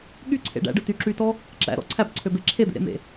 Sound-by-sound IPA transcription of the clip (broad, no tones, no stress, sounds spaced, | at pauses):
ɠ y ǀʰ ḛ ɖ æ̰ ɖ ɯ t y ǁ y t ɔ | ǁ æ̰ ɾ ɔ̰ ǀʰ æ b ǀʰ ø b e ǁʰ e d̪ ḛ ɾ ḛ m ḛ